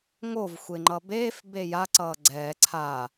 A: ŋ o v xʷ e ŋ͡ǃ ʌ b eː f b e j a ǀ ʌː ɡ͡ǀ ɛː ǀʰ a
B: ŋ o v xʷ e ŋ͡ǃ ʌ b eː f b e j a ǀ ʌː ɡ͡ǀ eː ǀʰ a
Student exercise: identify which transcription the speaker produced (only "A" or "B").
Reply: A